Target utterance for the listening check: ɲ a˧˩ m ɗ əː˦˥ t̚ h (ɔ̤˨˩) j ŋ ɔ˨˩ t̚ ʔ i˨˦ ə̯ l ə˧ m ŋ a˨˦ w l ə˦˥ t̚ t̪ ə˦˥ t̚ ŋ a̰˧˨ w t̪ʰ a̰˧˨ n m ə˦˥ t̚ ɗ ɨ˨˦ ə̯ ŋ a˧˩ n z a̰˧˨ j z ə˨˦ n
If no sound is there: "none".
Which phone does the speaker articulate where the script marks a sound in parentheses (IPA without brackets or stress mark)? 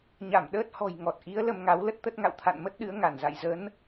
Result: ɔ̤˨˩